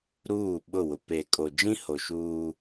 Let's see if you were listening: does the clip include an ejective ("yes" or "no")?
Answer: yes